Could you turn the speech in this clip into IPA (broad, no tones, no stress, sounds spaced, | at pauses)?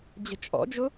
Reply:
d͡ʑ ə̤ t͡ʃʼ ɔ̰ d͡ʒ ʊ